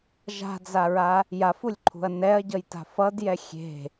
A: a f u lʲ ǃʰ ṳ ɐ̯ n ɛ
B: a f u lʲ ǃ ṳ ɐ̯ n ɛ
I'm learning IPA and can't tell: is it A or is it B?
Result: A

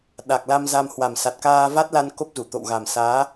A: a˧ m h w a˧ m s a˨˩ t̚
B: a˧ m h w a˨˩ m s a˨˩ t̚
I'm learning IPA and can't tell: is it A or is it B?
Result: B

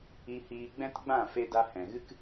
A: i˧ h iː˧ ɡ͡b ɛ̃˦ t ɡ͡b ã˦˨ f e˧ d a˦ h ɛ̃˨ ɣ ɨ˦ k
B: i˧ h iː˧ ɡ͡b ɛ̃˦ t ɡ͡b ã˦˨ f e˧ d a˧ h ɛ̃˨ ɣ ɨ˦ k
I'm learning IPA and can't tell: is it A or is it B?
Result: B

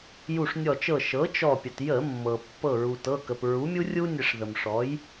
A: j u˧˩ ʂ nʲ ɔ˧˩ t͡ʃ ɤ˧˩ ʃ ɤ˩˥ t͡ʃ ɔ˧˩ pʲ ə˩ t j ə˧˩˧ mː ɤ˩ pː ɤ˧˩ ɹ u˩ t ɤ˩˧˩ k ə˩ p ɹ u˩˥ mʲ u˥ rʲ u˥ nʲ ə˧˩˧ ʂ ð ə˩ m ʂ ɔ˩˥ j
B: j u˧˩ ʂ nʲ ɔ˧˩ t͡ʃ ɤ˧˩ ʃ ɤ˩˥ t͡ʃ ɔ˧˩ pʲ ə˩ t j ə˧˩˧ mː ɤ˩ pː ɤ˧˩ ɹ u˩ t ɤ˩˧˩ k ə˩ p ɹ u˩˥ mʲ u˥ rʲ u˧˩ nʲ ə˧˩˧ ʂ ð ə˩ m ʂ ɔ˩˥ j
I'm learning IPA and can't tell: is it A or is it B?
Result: A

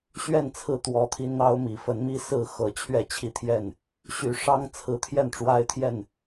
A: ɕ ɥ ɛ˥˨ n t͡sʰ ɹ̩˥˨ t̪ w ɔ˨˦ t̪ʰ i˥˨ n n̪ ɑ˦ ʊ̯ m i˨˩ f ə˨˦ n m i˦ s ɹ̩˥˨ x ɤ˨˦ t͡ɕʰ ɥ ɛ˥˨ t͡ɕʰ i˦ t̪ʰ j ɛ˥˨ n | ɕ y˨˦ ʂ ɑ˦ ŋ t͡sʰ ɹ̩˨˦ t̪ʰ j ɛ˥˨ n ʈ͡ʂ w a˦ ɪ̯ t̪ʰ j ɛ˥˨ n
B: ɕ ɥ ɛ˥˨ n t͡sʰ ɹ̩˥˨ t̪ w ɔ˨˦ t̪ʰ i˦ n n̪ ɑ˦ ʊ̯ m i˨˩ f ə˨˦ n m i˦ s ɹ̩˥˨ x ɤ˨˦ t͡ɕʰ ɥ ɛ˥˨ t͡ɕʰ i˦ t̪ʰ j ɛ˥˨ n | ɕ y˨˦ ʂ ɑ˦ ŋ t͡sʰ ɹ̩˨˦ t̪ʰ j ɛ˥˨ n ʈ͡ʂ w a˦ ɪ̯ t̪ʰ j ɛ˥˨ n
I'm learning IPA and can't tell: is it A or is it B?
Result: B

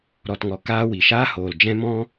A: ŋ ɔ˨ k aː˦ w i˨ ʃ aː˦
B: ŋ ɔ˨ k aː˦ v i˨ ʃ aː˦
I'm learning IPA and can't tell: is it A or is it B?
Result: A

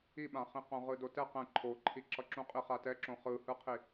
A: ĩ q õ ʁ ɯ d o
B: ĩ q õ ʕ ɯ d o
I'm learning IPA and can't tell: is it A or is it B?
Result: A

